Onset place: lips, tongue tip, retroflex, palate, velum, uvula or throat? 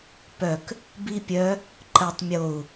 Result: lips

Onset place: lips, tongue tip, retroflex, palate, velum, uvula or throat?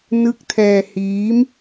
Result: tongue tip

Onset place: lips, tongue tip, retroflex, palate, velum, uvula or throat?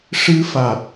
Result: retroflex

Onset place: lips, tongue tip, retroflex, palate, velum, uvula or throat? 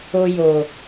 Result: palate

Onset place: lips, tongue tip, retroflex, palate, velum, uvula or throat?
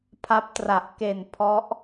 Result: lips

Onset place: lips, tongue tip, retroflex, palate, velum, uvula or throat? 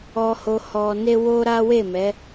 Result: throat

